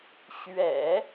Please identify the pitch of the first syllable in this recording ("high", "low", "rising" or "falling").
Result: low